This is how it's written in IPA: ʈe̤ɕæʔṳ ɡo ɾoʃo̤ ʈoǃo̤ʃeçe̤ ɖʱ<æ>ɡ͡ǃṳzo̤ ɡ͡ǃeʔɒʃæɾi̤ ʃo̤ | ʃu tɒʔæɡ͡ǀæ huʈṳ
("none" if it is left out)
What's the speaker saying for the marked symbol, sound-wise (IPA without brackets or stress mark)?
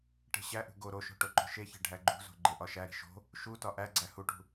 æ